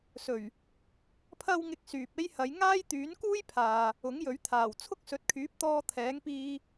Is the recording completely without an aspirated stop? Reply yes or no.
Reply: no